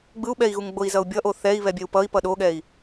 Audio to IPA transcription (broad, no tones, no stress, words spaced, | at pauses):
ɡ͡bɯu̯ɓɛi̯ɣuŋ ɡ͡boi̯zʌu̯bʲʌ ʔoθɛi̯ βɛbʲɛu̯pʌi̯pʌ ɗoɠɛi̯